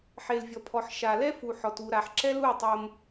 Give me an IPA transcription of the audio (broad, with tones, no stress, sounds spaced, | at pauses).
ħ e˨ l vʲ ɔ˨ pʰ ɔ˨ ħ ʃ a˨ l ɛ˦ f u˨ ħ ɔ˨ t u˨ ɾ a˨ ħ ǁ ɛ˦ l u˦˨ tˤ o˦ m